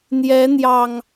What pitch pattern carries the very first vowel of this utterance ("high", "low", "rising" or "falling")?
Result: rising